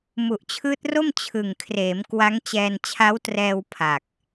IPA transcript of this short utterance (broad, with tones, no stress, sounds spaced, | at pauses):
m u˨˩ ʔ t͡ɕʰ ɯː˦˥ t̚ r o˥˩ m t͡ɕʰ ɯ˨˩ ŋ kʰ r eː˩˦ m k w a˦˥ ŋ t͡ɕ ɛː˧ n t͡ɕʰ a˦˥ w t r ɛː˧ w pʰ a˨˩ k̚